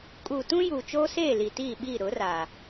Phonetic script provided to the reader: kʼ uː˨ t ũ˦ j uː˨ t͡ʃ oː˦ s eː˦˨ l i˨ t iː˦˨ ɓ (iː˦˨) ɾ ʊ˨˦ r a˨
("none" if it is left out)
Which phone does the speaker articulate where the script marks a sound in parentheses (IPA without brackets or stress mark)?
iː˦˨